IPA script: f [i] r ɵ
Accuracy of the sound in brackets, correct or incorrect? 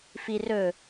correct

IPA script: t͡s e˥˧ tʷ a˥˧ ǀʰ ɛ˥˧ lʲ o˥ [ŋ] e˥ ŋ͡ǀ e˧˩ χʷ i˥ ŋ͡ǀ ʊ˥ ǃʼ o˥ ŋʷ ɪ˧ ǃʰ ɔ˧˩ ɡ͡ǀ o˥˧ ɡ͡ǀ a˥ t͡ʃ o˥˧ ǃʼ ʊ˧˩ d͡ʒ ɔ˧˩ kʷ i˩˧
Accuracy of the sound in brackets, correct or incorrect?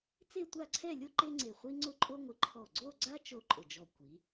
incorrect: ǃ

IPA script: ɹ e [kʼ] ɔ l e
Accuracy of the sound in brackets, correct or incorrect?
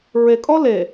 correct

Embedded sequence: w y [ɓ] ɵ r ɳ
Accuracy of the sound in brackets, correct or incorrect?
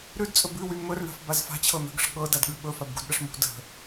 incorrect: m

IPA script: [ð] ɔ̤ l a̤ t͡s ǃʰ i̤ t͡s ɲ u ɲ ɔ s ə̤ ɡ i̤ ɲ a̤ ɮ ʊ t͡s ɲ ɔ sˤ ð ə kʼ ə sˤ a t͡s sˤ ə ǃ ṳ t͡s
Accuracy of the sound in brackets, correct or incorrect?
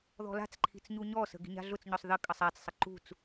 correct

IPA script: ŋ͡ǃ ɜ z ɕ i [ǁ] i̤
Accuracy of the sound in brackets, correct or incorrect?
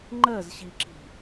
correct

